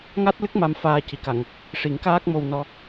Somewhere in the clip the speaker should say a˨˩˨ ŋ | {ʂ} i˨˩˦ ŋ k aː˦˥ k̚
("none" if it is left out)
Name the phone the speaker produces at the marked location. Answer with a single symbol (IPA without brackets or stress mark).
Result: ʂ